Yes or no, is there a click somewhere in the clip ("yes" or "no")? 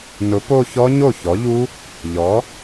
no